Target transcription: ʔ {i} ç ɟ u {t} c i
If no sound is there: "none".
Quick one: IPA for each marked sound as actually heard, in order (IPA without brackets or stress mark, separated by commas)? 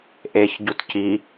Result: e, t